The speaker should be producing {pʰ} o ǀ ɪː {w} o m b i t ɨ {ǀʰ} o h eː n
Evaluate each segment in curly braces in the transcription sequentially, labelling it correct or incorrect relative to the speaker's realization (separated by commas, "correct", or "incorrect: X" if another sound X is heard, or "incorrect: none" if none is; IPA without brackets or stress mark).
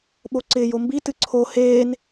incorrect: ɓ, incorrect: j, correct